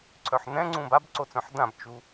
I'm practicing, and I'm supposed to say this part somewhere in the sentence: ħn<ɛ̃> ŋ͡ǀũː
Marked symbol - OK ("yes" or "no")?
yes